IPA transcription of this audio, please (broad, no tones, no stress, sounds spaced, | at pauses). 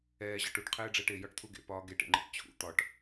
ɛː ʑ ɒ ʈ u ʈ qʰ ɛː ɖ͡ʐ ɛː ʈ e j ɒ ʈ t̪ʰ u ɡ ḛ p ɒː ɡ e ʈ ḛ ŋ͡ǃ ḭ ʈ t͡ɕʰ ṵ t̪ ɒ ʈ